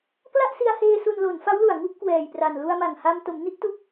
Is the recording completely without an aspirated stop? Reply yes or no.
yes